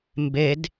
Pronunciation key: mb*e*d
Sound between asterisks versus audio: correct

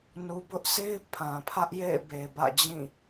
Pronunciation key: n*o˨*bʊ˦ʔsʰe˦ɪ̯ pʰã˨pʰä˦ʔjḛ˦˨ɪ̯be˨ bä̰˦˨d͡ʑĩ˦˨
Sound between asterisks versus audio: incorrect: u˨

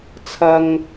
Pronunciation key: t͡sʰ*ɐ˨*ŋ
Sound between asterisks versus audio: correct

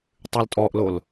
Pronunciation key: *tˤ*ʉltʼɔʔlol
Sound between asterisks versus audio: correct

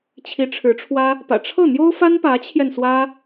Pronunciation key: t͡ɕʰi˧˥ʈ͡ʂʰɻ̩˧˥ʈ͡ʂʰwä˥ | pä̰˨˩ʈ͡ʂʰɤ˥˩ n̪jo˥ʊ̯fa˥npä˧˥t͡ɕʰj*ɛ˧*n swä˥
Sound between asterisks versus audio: correct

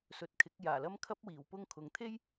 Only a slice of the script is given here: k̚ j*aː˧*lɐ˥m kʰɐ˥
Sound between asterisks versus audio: incorrect: aː˨˩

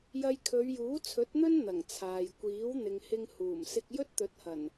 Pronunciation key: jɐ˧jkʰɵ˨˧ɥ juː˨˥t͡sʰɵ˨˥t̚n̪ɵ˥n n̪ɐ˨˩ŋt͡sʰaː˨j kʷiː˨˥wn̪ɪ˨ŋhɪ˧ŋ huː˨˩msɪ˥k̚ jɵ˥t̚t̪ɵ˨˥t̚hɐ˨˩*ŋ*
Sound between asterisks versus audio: incorrect: n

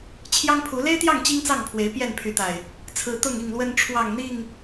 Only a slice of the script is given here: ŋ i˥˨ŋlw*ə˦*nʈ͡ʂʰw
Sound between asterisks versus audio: correct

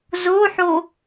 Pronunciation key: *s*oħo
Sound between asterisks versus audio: incorrect: z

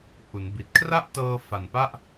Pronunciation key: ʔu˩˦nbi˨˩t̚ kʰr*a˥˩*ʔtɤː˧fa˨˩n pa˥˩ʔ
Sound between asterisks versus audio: correct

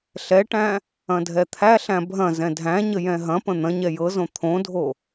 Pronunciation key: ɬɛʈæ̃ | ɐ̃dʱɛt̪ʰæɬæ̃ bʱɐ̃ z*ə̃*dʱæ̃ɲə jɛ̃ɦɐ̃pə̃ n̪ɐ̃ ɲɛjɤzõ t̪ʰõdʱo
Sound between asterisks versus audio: incorrect: ɛ̃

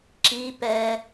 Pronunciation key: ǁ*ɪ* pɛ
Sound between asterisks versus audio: incorrect: i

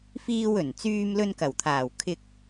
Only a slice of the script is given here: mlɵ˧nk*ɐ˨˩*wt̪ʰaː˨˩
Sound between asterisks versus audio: correct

